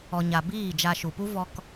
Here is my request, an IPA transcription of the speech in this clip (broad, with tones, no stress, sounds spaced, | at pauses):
ɔ˨ ɲ a˨ b iː˦˨ d͡ʒ a˧ ʃ u˨ p u˦ v ɔ˧ k